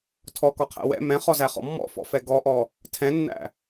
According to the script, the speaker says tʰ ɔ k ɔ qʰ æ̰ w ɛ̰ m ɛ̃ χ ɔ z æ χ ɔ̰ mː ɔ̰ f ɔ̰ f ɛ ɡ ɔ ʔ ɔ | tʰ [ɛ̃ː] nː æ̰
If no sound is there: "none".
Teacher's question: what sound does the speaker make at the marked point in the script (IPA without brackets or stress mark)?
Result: ɛ̃